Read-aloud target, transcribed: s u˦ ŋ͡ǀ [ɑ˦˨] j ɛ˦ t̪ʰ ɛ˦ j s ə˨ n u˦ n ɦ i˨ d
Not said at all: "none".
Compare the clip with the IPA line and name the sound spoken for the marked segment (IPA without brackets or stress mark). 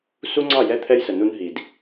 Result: ɑ˦˨